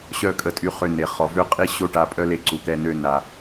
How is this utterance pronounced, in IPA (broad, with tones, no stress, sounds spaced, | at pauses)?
ɕ œ˧ kʼ ə˨ tʼ y˨˦ χ ø˧ n e˨ χ ɔ˨ v ø˦ qʼ i˦ ɕ o˦ ʈ a˧ pʼ œ˦ l e˦ ǀ u˨ t̪ ɛ˧ n ø˧ n a˨